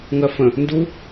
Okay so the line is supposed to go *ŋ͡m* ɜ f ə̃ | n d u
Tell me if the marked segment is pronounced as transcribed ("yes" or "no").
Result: no